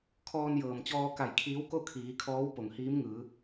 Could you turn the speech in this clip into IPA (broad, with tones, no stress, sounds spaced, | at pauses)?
kʰ ɔː˧ n j ɤː˩ m t͡ɕ ɔː˧ k a˧˩ j kʰ iː˧˥ w k o˥˨ kʰ iː˩˧ kʰ ɔː˧˥ w p o˩ ŋ h iː˧˥ m ŋ ɯː˩˧